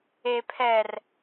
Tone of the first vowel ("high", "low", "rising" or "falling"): low